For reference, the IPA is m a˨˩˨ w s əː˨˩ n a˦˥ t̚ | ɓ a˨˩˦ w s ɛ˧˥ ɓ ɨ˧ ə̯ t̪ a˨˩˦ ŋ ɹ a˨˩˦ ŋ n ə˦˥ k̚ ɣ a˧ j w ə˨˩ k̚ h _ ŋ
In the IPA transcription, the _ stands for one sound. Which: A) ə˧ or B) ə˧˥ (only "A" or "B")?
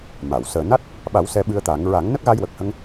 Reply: A